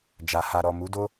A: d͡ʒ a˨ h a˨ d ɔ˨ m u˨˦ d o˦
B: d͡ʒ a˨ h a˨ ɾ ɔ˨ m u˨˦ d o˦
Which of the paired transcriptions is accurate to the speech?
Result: B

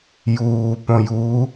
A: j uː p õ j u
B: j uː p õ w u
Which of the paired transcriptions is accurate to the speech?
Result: A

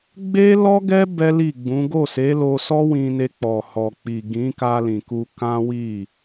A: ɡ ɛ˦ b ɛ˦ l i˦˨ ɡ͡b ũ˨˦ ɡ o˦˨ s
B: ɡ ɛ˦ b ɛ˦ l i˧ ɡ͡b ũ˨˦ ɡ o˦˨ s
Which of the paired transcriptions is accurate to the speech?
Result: A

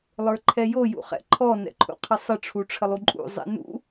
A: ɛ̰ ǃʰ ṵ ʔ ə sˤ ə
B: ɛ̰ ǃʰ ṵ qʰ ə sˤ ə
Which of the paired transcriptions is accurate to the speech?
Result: B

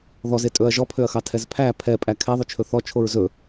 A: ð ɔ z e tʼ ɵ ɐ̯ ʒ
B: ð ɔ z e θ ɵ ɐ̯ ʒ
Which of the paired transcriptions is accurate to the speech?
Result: A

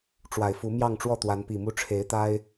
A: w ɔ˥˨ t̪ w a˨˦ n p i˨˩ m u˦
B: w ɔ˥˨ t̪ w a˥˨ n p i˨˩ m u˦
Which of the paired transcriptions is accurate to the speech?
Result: A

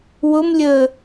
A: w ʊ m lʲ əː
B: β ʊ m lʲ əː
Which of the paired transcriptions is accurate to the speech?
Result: A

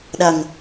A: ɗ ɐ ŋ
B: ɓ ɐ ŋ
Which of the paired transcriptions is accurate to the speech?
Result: A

